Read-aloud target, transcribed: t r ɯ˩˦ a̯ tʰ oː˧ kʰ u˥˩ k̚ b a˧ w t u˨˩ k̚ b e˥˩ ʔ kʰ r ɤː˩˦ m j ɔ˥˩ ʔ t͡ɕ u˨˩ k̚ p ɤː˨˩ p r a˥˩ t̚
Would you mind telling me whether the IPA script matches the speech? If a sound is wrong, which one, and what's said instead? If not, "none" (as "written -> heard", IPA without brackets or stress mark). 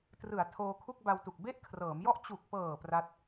none